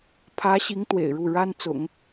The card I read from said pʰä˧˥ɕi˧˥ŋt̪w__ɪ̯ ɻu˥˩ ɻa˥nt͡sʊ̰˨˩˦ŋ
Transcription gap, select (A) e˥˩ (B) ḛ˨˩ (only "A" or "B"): B